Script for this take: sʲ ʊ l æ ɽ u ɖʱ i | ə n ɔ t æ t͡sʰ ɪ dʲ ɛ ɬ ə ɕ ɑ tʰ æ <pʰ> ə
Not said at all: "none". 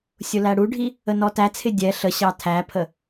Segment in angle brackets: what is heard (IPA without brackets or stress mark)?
pʰ